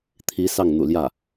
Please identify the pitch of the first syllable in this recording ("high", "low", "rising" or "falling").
rising